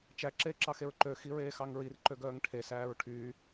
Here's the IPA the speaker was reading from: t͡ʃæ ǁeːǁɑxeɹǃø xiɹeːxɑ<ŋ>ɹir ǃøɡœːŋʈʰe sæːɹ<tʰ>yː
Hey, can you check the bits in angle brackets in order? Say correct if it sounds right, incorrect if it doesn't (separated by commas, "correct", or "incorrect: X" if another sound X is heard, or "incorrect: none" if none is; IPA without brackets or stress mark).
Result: correct, incorrect: ʈʰ